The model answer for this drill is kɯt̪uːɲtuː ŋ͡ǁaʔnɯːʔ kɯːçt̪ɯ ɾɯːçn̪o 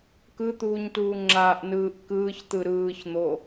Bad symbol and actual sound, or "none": none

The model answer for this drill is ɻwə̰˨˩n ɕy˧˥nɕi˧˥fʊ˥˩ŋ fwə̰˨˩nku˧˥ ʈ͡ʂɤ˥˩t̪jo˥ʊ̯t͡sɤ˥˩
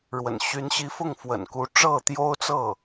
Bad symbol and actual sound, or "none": none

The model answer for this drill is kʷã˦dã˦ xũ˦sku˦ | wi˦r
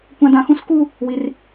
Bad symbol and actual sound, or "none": none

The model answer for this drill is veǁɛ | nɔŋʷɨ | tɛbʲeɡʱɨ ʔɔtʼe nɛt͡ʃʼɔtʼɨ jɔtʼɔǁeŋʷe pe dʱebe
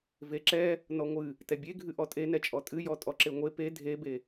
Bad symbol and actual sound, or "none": none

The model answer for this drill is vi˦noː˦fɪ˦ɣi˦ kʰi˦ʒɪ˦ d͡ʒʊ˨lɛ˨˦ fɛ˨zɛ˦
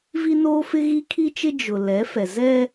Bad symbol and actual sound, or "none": ʒ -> t͡ʃ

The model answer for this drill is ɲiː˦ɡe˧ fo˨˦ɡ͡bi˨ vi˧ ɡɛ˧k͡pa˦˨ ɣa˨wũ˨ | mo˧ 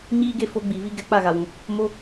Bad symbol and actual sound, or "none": none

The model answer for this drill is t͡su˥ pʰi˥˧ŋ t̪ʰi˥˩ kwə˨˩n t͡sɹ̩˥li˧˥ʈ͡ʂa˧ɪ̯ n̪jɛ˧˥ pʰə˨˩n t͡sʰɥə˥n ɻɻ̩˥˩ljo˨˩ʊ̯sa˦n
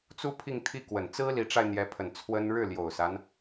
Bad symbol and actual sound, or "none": ɥ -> w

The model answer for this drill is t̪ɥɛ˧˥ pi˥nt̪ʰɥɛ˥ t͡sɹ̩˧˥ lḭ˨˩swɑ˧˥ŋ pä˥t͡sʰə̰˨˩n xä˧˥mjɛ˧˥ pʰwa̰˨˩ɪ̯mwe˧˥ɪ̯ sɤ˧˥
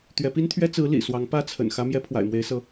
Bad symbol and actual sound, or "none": none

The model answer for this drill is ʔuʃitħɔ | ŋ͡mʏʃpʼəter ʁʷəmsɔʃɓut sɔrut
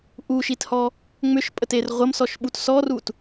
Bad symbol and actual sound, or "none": ħ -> h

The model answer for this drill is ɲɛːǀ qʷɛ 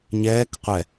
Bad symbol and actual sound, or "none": ǀ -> k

